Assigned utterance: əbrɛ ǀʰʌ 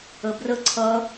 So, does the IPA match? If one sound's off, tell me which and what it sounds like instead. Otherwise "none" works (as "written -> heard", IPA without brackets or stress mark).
ɛ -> ə